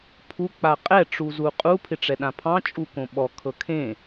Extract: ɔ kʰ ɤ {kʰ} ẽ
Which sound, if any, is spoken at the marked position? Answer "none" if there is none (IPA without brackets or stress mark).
kʰ